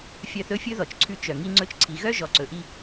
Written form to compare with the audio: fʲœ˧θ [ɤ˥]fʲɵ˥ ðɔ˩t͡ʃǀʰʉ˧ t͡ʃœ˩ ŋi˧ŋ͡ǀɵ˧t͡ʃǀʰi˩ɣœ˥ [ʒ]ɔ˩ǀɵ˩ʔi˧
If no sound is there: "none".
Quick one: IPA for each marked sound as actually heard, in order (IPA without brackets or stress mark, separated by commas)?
ɵ˥, ʒ